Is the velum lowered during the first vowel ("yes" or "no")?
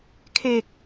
no